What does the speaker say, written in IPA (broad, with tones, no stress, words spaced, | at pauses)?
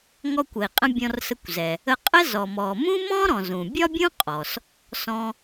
ŋɔ˧kʷə˩i̯qʼə̃˧ bʲɔ̃˧rsə˧kʷzɛ˩ | ə˧qʼə˥ zɔ˩mɔ˩ mũ˥mɔ̃˥ɾɔ̃˩ zũ˩ bʲɒ˥bʲũ˥qʼɔ˩s | sɔ̃˧